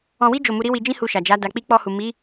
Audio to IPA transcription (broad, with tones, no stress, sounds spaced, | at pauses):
ɔ̃˧ w i˦ d͡ʒ o˦˨ m u˧ ɾ i˦ w i˧ d͡ʒ ĩ˦ h u˧ ʃ a˨ d͡ʒ a˨˦ d a˧ k͡p i˦ k͡p ɔ˧ h u˨ m i˨˦